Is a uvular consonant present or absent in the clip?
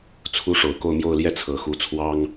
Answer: absent